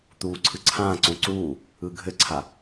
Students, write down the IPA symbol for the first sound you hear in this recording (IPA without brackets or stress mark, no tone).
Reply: t̪